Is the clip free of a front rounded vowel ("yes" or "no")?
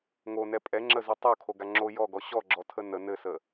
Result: yes